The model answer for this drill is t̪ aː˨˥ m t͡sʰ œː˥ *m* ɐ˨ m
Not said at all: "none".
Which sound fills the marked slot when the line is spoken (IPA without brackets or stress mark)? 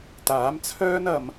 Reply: n